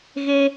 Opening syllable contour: high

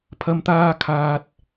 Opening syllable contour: low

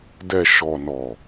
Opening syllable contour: low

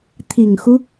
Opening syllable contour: low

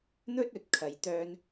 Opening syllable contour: high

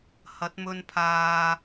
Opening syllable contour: rising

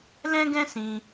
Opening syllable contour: high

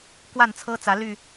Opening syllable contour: falling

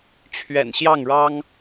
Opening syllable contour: low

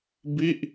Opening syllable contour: falling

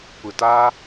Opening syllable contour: low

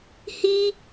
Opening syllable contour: high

